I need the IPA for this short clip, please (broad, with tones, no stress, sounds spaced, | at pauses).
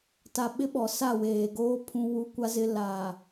t a˨ ɓ ɪ˦ ɓ ɔ˨ s a˦˨ w eː˨ ɡ oː˦ pʰ ũ˦ w u˦ kʷ a˦ z ɪ˦ l aː˨